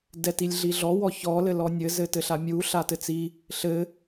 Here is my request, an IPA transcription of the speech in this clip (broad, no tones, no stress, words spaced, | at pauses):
dɛtilʲɮiɮɔ wɔçɔ lɘlɔnʲɘ zɘtɘɬamʲu ɬatɘt͡si | ɬɘ